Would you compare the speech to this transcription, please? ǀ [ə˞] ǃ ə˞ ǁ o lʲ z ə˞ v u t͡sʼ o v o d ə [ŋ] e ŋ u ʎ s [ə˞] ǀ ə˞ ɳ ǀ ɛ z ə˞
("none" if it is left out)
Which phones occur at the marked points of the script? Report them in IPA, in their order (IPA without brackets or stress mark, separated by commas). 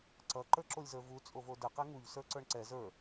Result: ʌ, q, ə˞